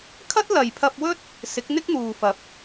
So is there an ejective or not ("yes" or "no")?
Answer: no